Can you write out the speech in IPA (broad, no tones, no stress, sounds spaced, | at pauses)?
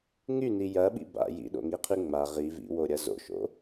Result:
ŋ y n i j ɐ ɓ ḭ b a̰ j ḭ ɗ o̰ ŋ i qʰ y ŋ͡m a ʁ i v ḭ w o ɾʲ ɐ z o̰ ʃ o̰